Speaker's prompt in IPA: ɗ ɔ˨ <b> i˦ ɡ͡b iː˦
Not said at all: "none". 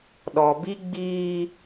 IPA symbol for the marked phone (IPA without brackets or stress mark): b